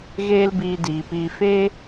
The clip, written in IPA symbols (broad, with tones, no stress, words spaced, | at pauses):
ɣeː˦lbiː˧diː˨piː˧ feː˦